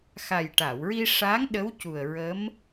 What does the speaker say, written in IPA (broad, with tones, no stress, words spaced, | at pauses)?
xa˨˩jʈa˨˩˨wɹi˧ʂaː˧˥ŋ ɗə˧˥w cu˨˩ə̯ɹə˧˥m